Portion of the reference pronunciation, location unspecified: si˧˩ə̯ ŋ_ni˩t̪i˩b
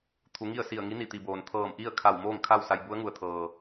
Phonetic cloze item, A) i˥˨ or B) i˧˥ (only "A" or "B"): B